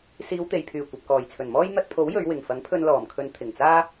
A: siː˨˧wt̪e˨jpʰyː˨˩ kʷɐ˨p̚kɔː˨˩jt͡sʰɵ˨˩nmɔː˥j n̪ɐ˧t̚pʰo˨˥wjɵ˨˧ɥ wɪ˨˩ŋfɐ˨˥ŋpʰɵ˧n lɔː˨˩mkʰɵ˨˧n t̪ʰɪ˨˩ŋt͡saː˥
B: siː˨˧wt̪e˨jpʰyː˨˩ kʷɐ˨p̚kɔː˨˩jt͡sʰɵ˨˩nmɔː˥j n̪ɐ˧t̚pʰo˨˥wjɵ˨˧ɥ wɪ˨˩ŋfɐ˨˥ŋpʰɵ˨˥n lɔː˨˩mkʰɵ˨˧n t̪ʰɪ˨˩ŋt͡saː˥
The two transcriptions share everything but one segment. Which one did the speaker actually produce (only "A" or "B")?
A